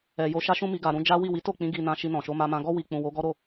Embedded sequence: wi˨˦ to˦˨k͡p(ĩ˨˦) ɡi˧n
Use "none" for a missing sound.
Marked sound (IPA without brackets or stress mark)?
ĩ˨˦